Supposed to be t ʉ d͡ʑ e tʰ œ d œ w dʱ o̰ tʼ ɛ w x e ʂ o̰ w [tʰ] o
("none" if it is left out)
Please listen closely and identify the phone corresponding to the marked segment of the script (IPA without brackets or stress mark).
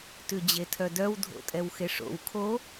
kʰ